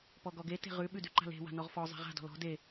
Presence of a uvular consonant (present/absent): present